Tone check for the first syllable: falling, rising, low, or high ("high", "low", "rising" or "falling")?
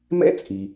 high